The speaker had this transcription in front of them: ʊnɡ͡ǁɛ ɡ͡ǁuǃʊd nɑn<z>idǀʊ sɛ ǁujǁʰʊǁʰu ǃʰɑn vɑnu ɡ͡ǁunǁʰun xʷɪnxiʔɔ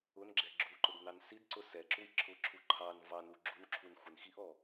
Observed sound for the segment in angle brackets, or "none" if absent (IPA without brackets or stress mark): s